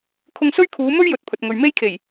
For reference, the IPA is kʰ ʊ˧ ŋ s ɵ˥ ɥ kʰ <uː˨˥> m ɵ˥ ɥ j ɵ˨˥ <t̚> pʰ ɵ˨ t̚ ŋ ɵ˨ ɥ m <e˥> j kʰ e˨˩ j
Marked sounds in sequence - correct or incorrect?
incorrect: uː˨˧, correct, correct

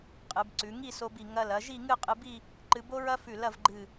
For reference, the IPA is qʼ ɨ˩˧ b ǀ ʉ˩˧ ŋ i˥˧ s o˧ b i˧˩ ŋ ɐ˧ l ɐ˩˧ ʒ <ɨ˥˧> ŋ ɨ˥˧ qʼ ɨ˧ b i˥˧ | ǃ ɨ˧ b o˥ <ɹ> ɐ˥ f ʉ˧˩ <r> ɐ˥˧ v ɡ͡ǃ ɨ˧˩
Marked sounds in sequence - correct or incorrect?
incorrect: i˥˧, correct, incorrect: l

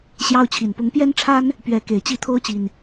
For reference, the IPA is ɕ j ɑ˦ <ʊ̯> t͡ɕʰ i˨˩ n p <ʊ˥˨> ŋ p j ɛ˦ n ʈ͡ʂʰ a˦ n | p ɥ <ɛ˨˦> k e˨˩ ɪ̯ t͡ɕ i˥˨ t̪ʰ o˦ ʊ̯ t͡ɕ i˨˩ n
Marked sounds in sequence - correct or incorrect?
correct, incorrect: ʊ˨˦, correct

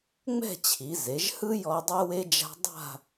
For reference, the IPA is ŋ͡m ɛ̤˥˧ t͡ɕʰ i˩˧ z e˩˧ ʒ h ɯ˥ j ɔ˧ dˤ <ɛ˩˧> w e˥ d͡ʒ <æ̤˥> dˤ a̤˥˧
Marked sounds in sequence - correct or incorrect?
incorrect: ɛ˥, incorrect: a̤˥

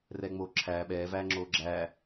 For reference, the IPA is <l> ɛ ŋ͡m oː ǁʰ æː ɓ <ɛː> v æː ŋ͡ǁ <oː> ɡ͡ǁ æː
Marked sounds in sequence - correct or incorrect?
incorrect: r, correct, correct

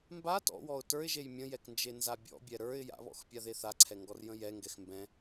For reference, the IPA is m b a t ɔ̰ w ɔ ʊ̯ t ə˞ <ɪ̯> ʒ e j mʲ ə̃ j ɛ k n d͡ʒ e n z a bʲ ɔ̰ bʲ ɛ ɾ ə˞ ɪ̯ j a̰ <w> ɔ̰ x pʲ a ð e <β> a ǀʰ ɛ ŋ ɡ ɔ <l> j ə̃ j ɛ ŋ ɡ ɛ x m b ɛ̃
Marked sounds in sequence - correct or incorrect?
correct, incorrect: β, incorrect: θ, incorrect: r

